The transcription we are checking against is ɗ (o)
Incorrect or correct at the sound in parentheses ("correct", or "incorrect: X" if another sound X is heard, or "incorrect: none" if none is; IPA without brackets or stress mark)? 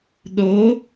correct